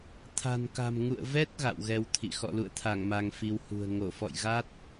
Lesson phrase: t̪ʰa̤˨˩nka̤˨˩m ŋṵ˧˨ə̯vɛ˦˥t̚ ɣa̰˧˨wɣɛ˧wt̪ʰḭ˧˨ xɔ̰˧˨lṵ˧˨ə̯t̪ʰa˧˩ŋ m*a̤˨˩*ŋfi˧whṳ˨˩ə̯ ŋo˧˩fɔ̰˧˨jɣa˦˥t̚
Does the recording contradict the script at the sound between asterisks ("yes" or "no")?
yes